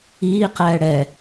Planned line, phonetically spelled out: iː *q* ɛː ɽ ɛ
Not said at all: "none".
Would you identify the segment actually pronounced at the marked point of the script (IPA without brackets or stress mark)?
q